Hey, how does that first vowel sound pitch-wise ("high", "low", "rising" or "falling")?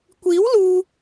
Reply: rising